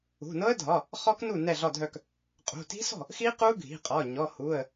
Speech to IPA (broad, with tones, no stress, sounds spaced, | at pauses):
ṳ˩˧˩ n ɤ˦˥ ə̯ dʱ ɒ˩˧˩ | χ ɔ˦˥ k n u˥˩ n ɛ˥˩ ɮ ɒ˥˩ dʱ œ˥˩ k | qʼ ṳ˩˧˩ t i̤˦˥ s ɔ̤˥˩ | x i˦˥ q u˦˥ ɡʱ i̤˩˧˩ qʼ ɒ˩˧˩ ɲ ɔ˩˧˩ h u˩˧˩ ə̯